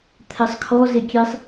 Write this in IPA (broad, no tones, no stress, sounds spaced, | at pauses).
t̪ʰ ɛ sˤ kʰ ɔ z e kʲ e sˤ